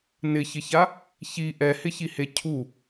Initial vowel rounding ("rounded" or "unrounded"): unrounded